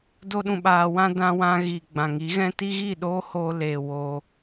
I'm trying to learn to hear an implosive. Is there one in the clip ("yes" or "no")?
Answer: yes